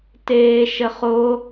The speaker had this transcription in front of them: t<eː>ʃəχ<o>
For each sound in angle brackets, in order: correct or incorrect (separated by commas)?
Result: correct, correct